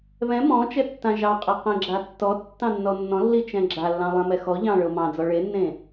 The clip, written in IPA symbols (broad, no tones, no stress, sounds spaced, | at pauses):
β ɛ̃ m ɔ̃ t͡ʃ ɛ tː ã ʒ ɑ qʼ ɛ q ɛ̃ ɡ͡ǁ a tː ɔ tː ɑ̃ nː ɔ nː ɔ̃ lː i t͡ʃ ɛ̃ ɡ͡ǁ a lː ɑ̃ lˠ ɛ̃ m ɛ x ɔ ʎ ɑ̃ ɭ ɤ m ɑ̃ d͡z ɔ ɭ e nː ẽ